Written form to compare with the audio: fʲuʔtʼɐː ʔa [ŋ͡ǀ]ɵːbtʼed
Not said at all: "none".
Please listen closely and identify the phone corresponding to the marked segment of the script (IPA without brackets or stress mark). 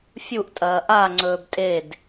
ŋ͡ǀ